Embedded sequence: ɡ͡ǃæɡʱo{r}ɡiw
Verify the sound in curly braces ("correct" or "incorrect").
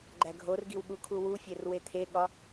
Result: correct